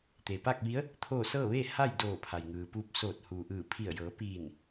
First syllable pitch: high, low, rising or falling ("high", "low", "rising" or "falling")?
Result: low